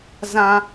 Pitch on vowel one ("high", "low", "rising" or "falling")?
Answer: high